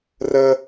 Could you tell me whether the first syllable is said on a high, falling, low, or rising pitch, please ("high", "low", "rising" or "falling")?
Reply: high